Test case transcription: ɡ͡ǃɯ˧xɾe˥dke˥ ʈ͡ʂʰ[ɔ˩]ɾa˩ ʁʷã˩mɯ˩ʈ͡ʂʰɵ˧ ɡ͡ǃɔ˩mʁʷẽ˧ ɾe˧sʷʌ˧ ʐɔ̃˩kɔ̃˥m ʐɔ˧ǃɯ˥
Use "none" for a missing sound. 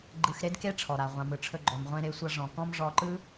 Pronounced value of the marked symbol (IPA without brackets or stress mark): ɔ˩